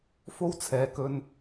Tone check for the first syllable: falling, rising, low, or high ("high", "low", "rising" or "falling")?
high